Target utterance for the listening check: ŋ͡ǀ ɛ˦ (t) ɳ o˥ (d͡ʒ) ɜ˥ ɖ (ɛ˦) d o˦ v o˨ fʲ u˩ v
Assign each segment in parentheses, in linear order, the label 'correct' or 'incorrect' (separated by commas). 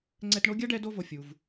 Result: correct, incorrect, correct